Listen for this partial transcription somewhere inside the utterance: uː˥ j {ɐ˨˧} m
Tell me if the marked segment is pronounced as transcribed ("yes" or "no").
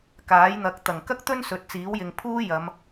yes